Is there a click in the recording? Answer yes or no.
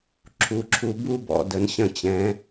yes